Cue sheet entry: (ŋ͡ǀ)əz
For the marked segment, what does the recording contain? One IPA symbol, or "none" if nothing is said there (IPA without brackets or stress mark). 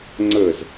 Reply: ŋ͡ǀ